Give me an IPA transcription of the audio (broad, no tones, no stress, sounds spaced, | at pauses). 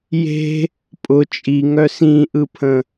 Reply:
j e̤ | pʼ ʊ t͡ʃʼ i ŋ œ s ĩ ʔ ɯ pʰ ə̃